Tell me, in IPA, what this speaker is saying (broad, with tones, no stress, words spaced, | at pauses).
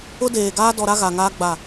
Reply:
ʊ˦deː˨ ɡaː˦dɔ˨ ɾa˦ɣa˨ŋaː˦ ɡ͡ba˦˨